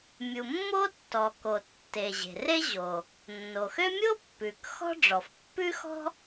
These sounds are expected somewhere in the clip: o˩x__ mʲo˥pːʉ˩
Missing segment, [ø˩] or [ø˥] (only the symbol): ø˥